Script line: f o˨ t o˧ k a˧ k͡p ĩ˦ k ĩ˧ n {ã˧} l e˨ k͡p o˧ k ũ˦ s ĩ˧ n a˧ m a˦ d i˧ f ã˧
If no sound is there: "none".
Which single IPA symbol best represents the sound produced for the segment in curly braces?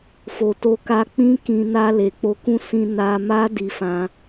a˧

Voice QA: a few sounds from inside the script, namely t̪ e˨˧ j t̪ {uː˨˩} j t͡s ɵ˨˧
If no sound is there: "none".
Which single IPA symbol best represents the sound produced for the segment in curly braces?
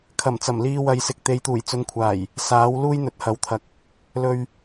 uː˨˩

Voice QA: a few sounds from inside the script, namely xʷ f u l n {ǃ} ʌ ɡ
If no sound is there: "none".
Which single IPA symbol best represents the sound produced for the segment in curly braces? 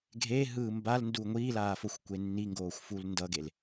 d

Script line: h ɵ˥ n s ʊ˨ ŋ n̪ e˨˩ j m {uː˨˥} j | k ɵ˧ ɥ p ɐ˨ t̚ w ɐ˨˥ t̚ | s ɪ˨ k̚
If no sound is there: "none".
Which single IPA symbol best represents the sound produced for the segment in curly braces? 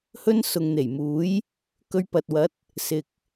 uː˨˥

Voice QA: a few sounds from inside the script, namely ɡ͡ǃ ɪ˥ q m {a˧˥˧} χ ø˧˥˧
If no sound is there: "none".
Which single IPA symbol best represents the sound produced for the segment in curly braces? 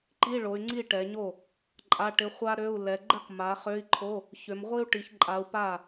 a˨˦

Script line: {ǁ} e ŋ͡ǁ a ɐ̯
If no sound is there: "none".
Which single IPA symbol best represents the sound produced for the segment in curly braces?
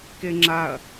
k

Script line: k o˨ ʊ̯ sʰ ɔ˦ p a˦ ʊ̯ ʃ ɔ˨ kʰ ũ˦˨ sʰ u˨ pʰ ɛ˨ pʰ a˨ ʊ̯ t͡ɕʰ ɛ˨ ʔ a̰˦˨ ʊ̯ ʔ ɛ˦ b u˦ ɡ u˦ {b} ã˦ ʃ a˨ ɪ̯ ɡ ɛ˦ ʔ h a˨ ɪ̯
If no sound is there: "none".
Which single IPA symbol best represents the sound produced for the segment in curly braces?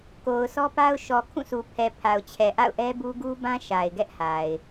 b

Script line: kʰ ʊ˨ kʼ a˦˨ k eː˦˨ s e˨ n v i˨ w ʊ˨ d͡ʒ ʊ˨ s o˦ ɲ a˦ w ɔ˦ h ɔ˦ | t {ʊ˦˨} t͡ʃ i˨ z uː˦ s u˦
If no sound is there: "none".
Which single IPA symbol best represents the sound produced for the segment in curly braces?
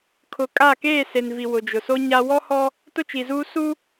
ʊ˦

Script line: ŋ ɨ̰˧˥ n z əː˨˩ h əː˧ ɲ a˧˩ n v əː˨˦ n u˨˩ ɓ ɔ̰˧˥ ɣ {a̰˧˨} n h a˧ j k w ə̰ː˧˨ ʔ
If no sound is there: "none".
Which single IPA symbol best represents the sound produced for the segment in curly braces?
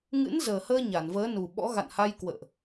a̰˧˨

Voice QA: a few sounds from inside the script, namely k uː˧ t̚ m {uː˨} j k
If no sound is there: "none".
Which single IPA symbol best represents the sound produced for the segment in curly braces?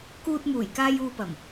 uː˨˩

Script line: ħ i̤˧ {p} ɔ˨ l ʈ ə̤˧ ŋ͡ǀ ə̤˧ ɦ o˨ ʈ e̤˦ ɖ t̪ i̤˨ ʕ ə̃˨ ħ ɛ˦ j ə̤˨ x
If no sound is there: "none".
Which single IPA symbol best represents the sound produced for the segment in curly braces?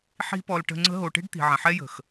p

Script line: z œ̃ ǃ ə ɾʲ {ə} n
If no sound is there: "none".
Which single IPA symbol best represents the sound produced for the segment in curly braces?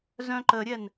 ɛ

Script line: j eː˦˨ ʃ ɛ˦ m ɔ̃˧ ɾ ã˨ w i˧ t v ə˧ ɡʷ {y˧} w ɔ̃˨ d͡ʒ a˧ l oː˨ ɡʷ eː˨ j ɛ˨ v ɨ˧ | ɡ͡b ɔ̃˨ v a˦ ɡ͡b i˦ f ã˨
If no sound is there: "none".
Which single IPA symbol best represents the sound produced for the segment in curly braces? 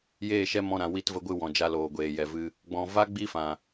ɨ˧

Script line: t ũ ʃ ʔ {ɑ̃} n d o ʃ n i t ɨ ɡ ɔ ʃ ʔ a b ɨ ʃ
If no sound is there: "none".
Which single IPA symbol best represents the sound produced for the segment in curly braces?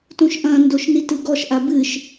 ɐ̃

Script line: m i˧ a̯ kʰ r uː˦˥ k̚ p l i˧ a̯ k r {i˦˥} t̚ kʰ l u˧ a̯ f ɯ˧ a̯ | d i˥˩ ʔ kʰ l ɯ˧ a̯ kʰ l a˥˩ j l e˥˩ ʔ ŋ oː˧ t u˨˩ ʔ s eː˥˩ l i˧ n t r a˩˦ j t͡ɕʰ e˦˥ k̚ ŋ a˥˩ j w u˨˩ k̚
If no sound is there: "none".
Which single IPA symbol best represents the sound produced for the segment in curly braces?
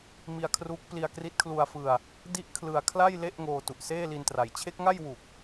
i˦˥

